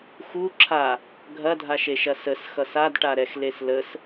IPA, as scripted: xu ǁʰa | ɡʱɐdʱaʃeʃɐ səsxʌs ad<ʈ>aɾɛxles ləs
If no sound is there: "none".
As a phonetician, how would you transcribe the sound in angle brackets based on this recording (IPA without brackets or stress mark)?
ʈ